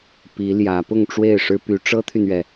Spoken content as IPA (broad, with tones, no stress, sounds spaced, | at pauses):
p i˧˥ l j ä˧˥ p ʊ˥˧ ŋ ʈ͡ʂ w e˥˩ ɪ̯ ʂ ɻ̩˥ p y˧˥ ʈ͡ʂ ɤ˥ t̪ʰ y˨ n ɥ ɛ˩